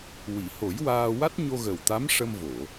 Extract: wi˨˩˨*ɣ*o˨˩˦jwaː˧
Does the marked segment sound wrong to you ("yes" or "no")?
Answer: yes